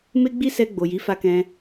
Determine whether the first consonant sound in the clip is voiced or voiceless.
voiced